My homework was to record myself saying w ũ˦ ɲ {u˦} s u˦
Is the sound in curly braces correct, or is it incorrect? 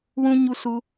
correct